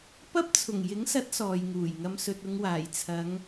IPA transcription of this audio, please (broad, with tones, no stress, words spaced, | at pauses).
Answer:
pɐ˥p̚t͡sʰʊ˨˩ŋ jɪ˨˥ŋsɐ˨˥t̚ sɔː˨jŋuː˨˩jŋɐ˧m sɵ˨t̚ʊ˨˧ŋwaː˨˩j t͡sʰɐ˨˧ŋ